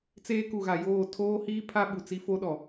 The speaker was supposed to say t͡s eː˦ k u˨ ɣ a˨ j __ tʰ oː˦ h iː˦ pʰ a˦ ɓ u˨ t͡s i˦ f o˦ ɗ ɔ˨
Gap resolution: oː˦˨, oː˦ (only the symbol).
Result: oː˦˨